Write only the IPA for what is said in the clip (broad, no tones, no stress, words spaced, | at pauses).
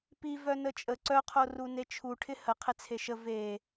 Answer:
pi vœnət͡ʃʼə ǀœ qʰorunet͡ʃʰu ʈʰɪhə qʰɪt͡sʰeʃə ve